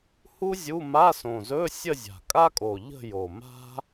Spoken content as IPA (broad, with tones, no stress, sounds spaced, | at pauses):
h u˥ zʲ u˧˥˧ m a˧˥˧ s õ˨˩ z ɵ˧˥˧ sʲ ə˥˧ zʲ a̤˨˩ kʼ a˥ kʼ o˨˩ ʎ ə̤˥˧ j o˨˩ m a̤˥